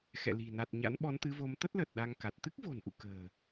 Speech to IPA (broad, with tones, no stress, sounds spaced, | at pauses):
x ɛ̰˧˨ l i̤˨˩ n a˨˩ t̚ ɲ a̰˧˥ n ɓ ɔ˨˦ n t̪ ɨ˨˦ v o˨˦ m t̪ ə˦˥ t̚ l ə˨˩ t̚ ɗ a˧ ŋ k a˨˩ t̚ t̪ ɨ˦˥ k̚ v o̤˨˩ n ʔ ṵ˧˨ k ə̤ː˨˩